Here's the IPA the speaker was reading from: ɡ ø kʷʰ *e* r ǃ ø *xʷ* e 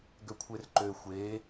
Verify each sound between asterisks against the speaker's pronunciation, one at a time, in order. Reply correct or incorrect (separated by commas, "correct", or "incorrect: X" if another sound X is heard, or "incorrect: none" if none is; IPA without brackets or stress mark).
correct, correct